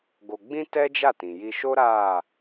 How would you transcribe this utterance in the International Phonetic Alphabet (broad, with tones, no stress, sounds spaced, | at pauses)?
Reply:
ɡ o˧ ɡ͡b ĩ˦ t ɛ˦ d͡ʒ a˦˨ t ĩ˨ j i˧ ʃ o˦ ɾ a˦˨